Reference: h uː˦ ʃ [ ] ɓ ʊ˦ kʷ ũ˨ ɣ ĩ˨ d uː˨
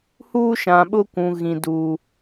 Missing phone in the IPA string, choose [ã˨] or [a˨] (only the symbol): ã˨